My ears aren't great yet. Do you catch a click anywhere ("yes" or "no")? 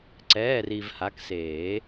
yes